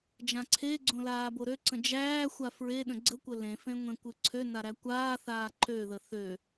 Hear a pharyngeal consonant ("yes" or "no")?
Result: no